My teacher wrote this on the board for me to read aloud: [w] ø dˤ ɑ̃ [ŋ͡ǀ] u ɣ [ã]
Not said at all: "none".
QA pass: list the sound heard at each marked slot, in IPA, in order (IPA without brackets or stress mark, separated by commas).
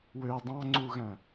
w, ŋ͡ǀ, æ̃